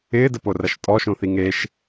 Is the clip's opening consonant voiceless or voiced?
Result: voiced